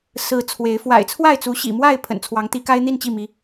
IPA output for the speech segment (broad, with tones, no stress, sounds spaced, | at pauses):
s ɹ̩˨˦ t͡sʰ w e˨˦ ɪ̯ f w a̰˨˩ ɪ̯ t͡sʰ w a˥˨ ɪ̯ t͡s u˨˦ ɕ ḭ˨˩ m w a˥˨ ɪ̯ pʰ ə̰˨˩ n t͡sʰ w ɑ˨˦ ŋ t̪ i˨˦ k a˦ ɪ̯ n̪ i˥˨ n t͡ɕ i˥˨ m i˨˦